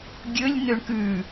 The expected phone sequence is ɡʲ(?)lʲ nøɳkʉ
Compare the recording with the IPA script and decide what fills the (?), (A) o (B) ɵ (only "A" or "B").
B